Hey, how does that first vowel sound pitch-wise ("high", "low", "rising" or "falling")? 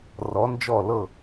rising